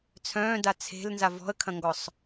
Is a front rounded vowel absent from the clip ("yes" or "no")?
no